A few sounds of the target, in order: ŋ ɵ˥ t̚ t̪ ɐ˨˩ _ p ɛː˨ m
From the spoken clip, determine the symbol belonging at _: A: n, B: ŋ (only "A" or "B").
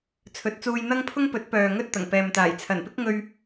B